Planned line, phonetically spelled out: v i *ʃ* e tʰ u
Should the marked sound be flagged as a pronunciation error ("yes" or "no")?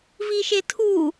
no